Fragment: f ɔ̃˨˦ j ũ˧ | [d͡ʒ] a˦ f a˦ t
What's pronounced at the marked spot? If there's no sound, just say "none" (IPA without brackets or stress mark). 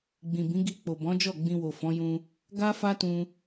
ɡ